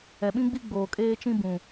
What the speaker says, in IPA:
ɛ˨ ɓ ĩ˦ ɡ͡b i˦ ɡ͡b oː˨ kʼ eː˦ t͡ʃ ĩ˦ b ũ˨

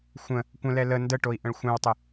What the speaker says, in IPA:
xʷ ə̃ | kʷ ə̃ l ɛ l ə n d ə ʈ o i̯ ʔ ə̃ ɭ xʷ ɛ̃ w tˤ ə

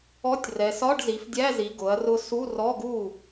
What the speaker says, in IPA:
ɔ˧˥˧ tʲ r ɛ˩˧ s ɒ˧˥˧ ɖ z i˩˧ f dʲ æ˧˥˧ z i˩˧ ɡ ʊ˩˧ ɐ̯ r ʊ˧ s u˧˥˧ r ɔ˧˥˧ ɡ u˥˩

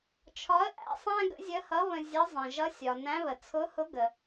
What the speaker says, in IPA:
t͡ʃʰ ɒ˧˥ ə̯ ʔ æ̰˩˧ sˤ æ̃˥ ɡ ə̰˧˥ zʲ ə˧˥ h ʌ˧˥ β ə̃˧ zʲ ʌ˧˥ zˤ ə̃˩ ʒ ʌ˧˥ sʲ ɒ˩ n æ̃˧˥ β ə˩ t͡sʰ ʊ˧˥ h ʊ˧˥ ɡ ə˩

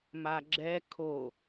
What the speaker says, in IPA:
m a ɡ͡ǁ ɛ kʰ o

